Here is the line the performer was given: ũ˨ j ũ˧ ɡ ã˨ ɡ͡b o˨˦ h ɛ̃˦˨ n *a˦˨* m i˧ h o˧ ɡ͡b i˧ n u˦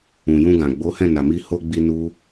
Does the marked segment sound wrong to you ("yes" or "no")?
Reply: yes